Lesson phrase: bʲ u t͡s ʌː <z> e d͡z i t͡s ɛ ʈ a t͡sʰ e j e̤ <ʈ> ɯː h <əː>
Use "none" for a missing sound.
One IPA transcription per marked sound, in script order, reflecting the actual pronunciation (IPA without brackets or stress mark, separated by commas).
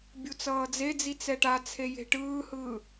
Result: d͡z, ʈ, ɯː